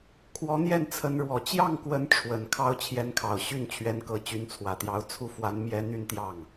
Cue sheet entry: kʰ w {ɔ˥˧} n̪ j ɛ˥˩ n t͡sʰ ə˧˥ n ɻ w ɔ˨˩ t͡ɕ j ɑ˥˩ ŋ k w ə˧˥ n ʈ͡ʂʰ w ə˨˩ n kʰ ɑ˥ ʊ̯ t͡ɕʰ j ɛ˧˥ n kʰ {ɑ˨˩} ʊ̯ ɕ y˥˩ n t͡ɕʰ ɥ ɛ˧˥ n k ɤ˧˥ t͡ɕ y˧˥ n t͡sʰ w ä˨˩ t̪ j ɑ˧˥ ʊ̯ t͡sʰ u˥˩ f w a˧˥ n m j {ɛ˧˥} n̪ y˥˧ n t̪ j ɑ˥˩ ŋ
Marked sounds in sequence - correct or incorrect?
incorrect, correct, correct

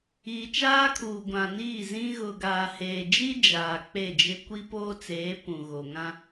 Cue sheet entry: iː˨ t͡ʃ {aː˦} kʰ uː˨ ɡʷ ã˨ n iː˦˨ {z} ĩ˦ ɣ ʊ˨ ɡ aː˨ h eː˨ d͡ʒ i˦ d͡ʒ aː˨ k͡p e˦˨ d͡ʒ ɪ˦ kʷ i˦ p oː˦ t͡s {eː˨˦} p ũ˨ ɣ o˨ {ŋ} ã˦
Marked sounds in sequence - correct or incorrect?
correct, correct, correct, correct

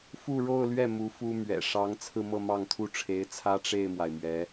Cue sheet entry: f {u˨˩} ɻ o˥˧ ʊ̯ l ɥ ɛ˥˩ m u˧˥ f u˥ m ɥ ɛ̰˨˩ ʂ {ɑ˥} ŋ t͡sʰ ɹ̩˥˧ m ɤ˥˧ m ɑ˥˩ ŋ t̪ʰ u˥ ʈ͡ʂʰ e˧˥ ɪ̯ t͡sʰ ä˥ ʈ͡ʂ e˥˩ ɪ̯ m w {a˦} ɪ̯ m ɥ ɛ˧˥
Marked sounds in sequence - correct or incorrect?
incorrect, incorrect, incorrect

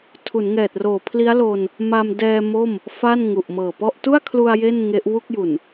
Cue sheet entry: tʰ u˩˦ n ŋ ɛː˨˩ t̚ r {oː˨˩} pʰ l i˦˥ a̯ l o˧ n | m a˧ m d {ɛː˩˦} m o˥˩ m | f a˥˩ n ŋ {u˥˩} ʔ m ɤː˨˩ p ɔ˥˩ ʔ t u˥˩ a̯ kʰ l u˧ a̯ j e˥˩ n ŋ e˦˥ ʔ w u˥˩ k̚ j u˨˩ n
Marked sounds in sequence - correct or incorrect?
correct, incorrect, incorrect

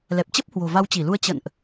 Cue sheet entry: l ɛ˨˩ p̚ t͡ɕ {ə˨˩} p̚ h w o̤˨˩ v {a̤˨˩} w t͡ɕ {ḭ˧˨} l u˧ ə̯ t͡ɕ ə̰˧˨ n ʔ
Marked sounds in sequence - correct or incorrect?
incorrect, incorrect, incorrect

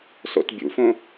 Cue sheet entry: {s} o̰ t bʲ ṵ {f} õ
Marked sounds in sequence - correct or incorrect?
correct, correct

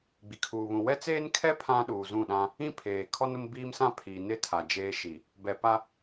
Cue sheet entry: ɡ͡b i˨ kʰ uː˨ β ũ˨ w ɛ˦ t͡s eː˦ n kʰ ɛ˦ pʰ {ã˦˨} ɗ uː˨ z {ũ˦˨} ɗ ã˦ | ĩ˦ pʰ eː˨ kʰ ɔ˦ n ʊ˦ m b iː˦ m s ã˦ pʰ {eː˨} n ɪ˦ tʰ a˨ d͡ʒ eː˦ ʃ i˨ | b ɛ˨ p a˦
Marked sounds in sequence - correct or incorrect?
incorrect, correct, incorrect

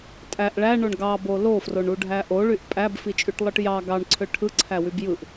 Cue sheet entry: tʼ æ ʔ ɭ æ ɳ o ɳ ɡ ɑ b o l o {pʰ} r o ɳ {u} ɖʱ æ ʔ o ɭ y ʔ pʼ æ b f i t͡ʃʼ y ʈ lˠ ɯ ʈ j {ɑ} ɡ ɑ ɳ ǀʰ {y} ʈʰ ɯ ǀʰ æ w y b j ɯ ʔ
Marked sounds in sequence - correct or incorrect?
incorrect, correct, correct, incorrect

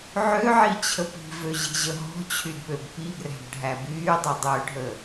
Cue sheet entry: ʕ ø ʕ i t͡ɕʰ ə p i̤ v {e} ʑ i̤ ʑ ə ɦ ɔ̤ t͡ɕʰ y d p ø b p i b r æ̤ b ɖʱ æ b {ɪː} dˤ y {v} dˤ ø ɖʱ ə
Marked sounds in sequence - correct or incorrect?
incorrect, incorrect, incorrect

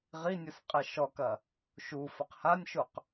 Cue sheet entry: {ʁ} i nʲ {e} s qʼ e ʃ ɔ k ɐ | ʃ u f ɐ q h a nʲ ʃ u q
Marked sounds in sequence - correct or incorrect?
correct, incorrect

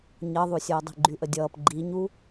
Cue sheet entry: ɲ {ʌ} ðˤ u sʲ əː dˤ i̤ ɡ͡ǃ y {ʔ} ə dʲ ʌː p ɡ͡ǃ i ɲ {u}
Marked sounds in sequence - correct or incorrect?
correct, correct, correct

